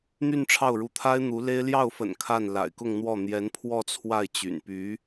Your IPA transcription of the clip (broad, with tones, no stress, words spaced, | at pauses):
n̪y˥˧nʈ͡ʂʰɑ˥˩ʊ̯ɻu˧˥t̪ʰa˥ɪ̯ n̪u˧˥le˥ɪ̯ ljɑ˥˩ʊ̯fə̰˨˩n kʰa˥˩n la̰˨˩ɪ̯kʊ˥˧ŋn̪wɔ˥˩ n̪jɛ˧˥npʰwɔ˥˧ t͡sʰwa˥˩ɪ̯ t͡ɕy̰˨˩npy˧˥